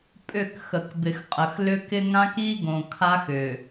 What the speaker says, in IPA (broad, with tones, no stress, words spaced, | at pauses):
pʼʏ˦˨k xə˨kbɪ˨xqʼə˨x lʏ˦kɪ˦ ŋã˦ki˦ɡõ˨ kʰa˦xʏ˨